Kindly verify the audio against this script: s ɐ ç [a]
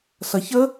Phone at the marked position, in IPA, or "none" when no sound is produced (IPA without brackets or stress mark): ə